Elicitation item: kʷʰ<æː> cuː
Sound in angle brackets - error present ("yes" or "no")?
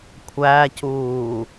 no